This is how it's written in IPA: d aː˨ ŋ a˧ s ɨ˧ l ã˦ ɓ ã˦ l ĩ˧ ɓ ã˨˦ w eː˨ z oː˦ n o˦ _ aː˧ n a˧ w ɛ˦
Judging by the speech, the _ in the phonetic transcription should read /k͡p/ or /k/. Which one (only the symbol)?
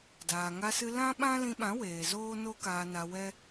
k